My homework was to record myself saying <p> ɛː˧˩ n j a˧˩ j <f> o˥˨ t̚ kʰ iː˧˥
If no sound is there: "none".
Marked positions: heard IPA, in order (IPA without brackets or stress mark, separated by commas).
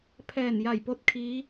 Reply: pʰ, p